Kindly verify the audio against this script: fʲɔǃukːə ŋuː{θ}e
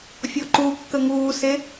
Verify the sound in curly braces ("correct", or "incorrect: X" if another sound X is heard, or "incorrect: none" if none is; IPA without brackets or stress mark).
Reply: incorrect: s